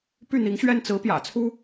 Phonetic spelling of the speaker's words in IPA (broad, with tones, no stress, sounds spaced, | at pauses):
p y˥˩ n̪ i˧˥ ŋ ɕ ɥ ɛ˥˩ n t͡s ɹ̩˧˥ p j ä̰˨˩ t͡sʰ u˥